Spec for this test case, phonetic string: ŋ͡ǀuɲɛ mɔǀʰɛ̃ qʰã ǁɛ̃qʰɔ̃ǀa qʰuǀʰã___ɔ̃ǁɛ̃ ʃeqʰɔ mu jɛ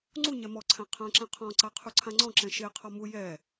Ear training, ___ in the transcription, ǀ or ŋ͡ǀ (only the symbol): ŋ͡ǀ